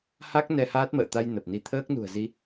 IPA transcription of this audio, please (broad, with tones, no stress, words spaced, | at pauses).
ha˦˥k̚ nɛ˧haː˦˥t̚mə̰ː˧˨t̪a˧j nə˨˩p̚ni˧ t̪ʰəː˦˥k̚nṳ˨˩ə̯zi˧